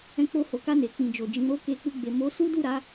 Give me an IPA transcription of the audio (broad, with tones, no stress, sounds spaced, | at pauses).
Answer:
ɛ̃˧ k͡p o˧ h o˨ k a˧ n e˨ k͡p ĩ˨ d͡ʒ o˨ d͡ʒ ĩ˨˦ ɾ o˦ k e˧ k͡p u˧ ɡ͡b e˨ m o˨˦ s u˦ d u˦˨ ɾ a˨˦